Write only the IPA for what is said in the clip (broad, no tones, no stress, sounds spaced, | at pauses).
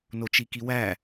n o t͡ʃ i k i w æ